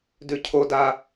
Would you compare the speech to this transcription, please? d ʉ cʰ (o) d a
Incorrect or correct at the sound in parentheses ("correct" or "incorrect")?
correct